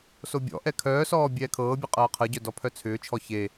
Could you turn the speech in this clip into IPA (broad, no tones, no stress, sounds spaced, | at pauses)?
s o bʲ ɔ̰ ʔ ɛ kʰ œː s ɔː bʲ ɛː kʰ ɤː bʲ ɛ qʼ ɤː qʰ ɤ ɟ œ d ɔ pʰ œ t͡sʰ ʏː t͡ʃʰ ɔ ç e